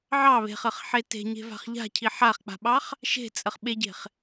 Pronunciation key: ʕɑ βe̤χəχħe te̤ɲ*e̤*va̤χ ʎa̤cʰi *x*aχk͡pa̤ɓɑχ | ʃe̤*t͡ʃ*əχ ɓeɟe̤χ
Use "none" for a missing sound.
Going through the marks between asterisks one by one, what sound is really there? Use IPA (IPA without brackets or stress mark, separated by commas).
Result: e̤, ħ, t͡sʼ